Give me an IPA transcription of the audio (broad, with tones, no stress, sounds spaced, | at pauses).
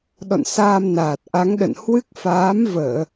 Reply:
ɗ ɔ̰˧˨ n s aː˧ m n aː˨˩ t̚ ʔ a˨˦ ŋ ɗ ə̰˧˨ n h w ɨ˦˥ k̚ f aː˨˦ m v əː˧˩˨